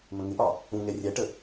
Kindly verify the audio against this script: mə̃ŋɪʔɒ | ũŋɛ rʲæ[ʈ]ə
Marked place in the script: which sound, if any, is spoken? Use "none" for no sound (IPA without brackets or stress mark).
ʈ